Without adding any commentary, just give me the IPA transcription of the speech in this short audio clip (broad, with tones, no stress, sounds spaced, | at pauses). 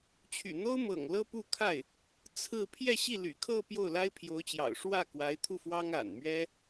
t͡ɕʰ y̰˨˩ n̪ o˥ ʊ̯ m ɤ̰˨˩ ŋ l ɤ˥ p u˥˧ kʰ a˥˩ ɪ̯ | t͡sʰ ɹ̩˥˧ pʰ j ɛ˥˧ ɕ i˥˩ l y̰˨˩ kʰ ɤ˥˧ p j o˥˩ ʊ̯ l a˥ ɪ̯ pʰ j o˧˥ ʊ̯ t͡ɕ j ɑ̰˨˩ ʊ̯ ʂ w ä˥˩ k w a˧˥ ɪ̯ t̪ʰ u˥˩ f w ɑ˥ ŋ a̰˨˩ n m ɥ ɛ˥